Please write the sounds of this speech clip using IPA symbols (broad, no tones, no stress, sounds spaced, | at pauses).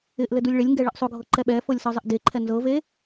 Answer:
ɪ ʔ l ɘ d u lʲ ɭ ɪ lʲ ŋ ɡ ɛ ɭ ɘ ʔ sˤ ʊ ɡʱ ɤ ǃ ɛ ɓ ɛ f ɤ lʲ s ɤ zˤ ɪ ʔ d e ǃʰ ɛ n z ɤ v e